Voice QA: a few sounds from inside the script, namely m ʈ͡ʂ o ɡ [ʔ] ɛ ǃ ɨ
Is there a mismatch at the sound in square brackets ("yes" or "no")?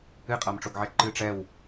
yes